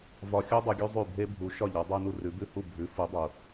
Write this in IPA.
v ɒ˧ xʲ u˥ dˤ u˧ ɡʲ ʉ˥ zˤ ʉ˥˩ bʱ e˥ bʱ u˩˥ ʃ ɒ˥˩ ʎ ɒ˩˥ dˤ ʉ˧ n u˧ r ʉ˩˥ b ʉ˥˩ h u˥˩ bʱ ʉ˩˥ f u˩˥ dˤ u˩

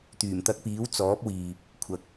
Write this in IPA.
t̪ yː˨˩ m t̪ ɐ˧ k̚ p iː˨˥ w t͡s ɔː˨˥ p̚ w iː˨ p̚ | kʷʰ ɐ˨ k̚

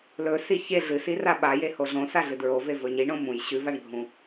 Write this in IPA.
l ɵ s i ç e ɮ ɨ s i r a ɓ a j e h o ɮ õ s a ɮ ɨ d ɹ o v e v ɵ ɲ i ɳ õ m ũ j ɕ ʉ v a ɳ ɡʱ ũ

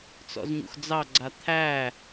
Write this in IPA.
t͡s ɔ̰ z ɲ ṵ x d͡z ɑ ɡ͡ǀ a t̪ʰ æ

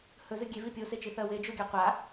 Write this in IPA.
h ɵ z ɨ ɡʲ e v i pʲ o s e t͡ʃ i θ ɐ w e d͡ʒ o ɡʲ a qʷ a

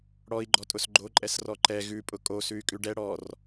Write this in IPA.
ɽ ɔ i̯ ɡ͡ǃ ɔ tʼ ʊ s ɡ͡ǃ o ǃʼ ɛ s r ɔ ǃ ɛ ɣ ʉ pʼ ʊ kʼ o s ʉ y̯ kʼ ʉ ɖ ɛ ɽ ɔ r

